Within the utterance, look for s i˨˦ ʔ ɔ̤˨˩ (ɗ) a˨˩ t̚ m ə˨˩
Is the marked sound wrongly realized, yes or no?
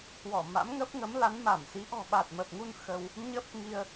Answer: yes